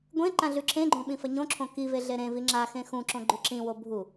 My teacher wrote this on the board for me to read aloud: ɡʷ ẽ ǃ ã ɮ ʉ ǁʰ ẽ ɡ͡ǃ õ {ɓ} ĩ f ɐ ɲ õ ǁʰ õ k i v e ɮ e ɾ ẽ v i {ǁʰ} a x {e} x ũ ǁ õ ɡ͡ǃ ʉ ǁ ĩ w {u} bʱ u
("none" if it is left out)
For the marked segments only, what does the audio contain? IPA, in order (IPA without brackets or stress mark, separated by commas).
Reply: ɓ, ŋ͡ǁ, ẽ, o